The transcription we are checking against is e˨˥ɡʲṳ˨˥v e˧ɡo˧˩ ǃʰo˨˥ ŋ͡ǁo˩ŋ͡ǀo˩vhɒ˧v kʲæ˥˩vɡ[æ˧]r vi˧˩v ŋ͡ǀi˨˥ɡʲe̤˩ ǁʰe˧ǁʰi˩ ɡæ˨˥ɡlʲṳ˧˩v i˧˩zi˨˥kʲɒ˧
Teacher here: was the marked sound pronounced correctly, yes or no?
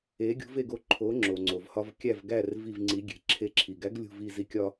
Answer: no